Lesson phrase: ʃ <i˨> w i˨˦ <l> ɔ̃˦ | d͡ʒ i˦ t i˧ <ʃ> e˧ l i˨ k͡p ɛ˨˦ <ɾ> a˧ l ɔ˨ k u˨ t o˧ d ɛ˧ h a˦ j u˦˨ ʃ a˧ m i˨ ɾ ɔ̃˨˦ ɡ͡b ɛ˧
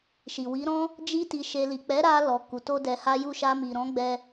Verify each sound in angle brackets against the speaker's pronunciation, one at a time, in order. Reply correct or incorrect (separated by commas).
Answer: correct, incorrect, correct, correct